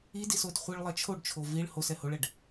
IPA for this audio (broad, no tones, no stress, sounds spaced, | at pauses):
i d i s o d χʷ i ɭ lˠ ɜ t͡ʃʰ o ɖ t͡ʃʰ o v i ɭ h o s ɛ h o ɭ ɛ ɖ